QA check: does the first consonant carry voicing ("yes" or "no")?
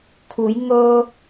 no